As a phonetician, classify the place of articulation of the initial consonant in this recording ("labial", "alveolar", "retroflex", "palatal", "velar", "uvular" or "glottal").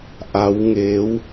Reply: glottal